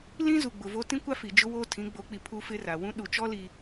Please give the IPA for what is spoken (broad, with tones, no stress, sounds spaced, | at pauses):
l ĩ˦ z u˨ ɡ͡b ʊ˨ v o˦ t ĩ˦ kʷ a˦ f i˨ d͡ʒ ʊ˦ w oː˦ tʰ ĩ˨˦ ɡ͡b o˨˦ k͡p i˨ pʰ u˦ f ɪ˦ r a˨ w ũ˦ ɗ u˨ t͡ʃ ɔ˦ l i˨